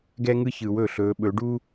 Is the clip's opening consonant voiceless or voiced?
voiced